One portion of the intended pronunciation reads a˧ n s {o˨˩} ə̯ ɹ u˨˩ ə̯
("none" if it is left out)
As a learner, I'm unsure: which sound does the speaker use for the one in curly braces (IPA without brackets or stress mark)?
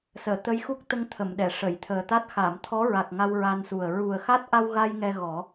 u˨˩